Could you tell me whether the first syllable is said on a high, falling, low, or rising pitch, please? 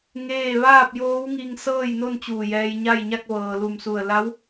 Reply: falling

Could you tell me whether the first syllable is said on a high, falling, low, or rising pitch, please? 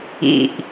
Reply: low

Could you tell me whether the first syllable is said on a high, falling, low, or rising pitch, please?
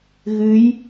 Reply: rising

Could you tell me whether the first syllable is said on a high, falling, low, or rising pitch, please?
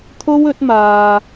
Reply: high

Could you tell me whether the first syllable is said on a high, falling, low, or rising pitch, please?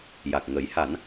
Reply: low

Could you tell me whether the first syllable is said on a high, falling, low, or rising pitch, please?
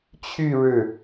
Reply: falling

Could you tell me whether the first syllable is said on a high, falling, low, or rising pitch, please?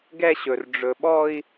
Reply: high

